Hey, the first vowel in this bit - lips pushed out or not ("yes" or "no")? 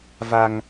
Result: no